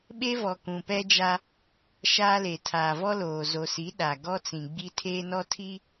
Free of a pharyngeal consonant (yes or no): yes